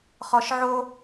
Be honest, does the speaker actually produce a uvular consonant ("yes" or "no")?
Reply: yes